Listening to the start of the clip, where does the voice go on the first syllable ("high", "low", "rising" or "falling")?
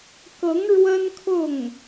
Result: rising